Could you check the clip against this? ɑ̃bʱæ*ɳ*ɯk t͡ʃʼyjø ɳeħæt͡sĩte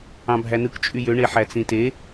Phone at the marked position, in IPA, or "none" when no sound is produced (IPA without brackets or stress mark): n